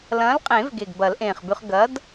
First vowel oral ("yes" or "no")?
no